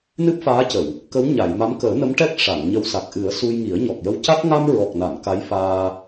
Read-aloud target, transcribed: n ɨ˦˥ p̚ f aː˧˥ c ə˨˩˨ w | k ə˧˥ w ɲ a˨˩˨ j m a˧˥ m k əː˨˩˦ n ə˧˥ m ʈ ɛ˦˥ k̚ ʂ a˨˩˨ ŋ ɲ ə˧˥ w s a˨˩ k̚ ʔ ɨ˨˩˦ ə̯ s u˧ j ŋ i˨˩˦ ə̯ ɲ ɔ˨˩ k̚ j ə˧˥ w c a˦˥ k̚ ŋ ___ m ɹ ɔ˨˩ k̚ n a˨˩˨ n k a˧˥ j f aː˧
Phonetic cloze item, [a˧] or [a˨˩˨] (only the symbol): a˧